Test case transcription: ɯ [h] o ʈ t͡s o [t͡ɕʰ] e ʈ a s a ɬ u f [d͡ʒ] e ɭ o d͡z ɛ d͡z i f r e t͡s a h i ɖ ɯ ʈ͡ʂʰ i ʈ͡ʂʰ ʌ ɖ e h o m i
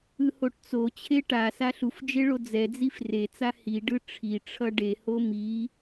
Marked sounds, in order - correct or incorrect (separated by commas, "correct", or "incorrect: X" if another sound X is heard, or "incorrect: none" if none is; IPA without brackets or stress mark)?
correct, correct, correct